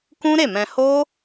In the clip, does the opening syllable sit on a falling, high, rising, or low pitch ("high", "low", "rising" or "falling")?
high